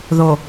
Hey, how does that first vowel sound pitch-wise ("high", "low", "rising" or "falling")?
low